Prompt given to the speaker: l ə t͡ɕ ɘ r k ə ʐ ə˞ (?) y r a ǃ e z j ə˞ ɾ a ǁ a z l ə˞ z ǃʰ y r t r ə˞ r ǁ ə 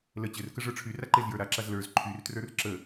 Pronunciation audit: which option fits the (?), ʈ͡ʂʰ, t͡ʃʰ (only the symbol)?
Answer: ʈ͡ʂʰ